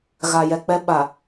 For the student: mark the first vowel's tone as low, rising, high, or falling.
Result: low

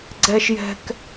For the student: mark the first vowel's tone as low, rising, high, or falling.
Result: high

